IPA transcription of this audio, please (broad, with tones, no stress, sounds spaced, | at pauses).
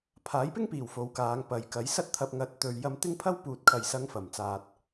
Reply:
pʰ aː˨˥ j p ɪ˥ ŋ p iː˨˩ w f o˨˧ w k aː˨˧ ŋ p ɐ˨ j k ɐ˨˥ j s ɐ˥ t̚ t̪ʰ ɐ˧ p̚ ŋ ɐ˨˥ t̚ t̪ ɵ˨ ɥ j ɐ˧ m t̪ ɪ˥ ŋ pʰ ɐ˥ w p uː˨ t̚ kʰ ɐ˨˩ j s ɐ˨˧ ŋ f ɐ˨˩ m t͡s aː˨ t̚